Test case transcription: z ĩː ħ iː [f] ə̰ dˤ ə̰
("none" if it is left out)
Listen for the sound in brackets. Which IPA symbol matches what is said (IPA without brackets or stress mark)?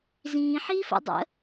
f